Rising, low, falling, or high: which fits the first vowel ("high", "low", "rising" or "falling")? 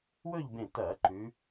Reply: falling